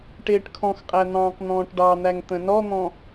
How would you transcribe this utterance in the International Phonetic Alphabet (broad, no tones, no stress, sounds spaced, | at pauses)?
ʈ ɪː ʈ kʰ ɔ̃ x qʼ æ n̪ ɑ̃ː q n̪ ɔ̃ː ʈ ɖ ɑ n̪ æ ŋ t̪ ə̃ n ɔ n̪ ɔ̃